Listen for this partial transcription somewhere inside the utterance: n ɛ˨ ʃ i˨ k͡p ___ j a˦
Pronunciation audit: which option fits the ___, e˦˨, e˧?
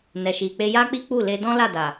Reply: e˧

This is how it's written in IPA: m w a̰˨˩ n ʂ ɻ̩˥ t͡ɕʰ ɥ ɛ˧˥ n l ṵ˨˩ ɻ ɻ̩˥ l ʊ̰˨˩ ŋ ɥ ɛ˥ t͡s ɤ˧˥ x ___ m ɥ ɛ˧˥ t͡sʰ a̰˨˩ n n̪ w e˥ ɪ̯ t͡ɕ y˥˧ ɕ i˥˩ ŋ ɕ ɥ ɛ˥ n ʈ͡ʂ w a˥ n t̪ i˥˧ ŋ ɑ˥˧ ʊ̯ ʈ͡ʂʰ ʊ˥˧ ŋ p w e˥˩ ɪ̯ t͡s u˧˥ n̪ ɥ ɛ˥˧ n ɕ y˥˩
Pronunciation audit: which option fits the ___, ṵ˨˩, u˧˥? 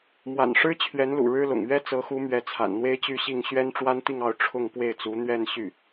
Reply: u˧˥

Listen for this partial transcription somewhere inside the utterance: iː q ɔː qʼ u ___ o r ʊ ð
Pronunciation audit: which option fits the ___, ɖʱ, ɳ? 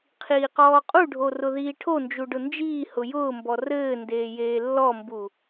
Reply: ɖʱ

